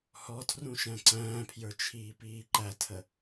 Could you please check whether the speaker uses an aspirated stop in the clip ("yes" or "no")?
yes